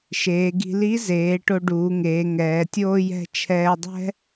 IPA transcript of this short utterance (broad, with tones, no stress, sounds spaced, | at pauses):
ʃ eː˩˧ ɡ i̤˧ l i˧˥ z eː˩˧ ʈ o˧ ɖ uː˩˧ ŋ eː˩˧ ŋ ɛː˩˧ tʲ oː˥ j ɛ̤˥ t͡ʃʰ ɛː˧ dˤ ɛ̤˥